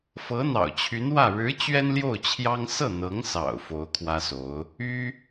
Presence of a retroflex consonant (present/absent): present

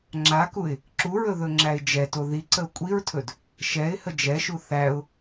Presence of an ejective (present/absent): present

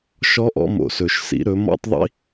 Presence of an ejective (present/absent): absent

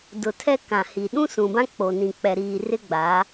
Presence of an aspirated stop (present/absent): present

